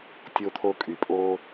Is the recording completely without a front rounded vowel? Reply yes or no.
no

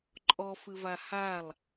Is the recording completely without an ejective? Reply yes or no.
no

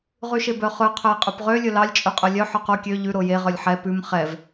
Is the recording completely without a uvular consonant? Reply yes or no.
no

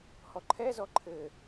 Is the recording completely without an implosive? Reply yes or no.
yes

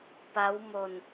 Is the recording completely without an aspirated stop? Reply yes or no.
yes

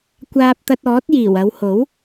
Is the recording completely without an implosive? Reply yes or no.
yes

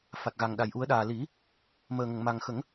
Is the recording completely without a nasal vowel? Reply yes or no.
yes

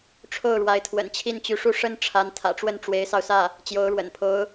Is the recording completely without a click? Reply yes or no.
yes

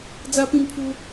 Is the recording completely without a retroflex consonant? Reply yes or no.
yes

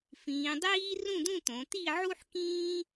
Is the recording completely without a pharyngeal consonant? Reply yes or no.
no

